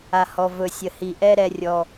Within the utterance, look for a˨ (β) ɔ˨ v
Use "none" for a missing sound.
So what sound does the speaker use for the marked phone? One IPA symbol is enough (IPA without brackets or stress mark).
h